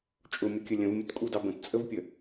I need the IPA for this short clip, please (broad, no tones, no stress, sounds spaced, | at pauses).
t͡ʃʼ ʊ mʲ ʌ kʲ ə lʲ ə̃ v mʲ ʊ t kʼ u d ɑ b ə̃ t t͡sʼ ə v pʲ ə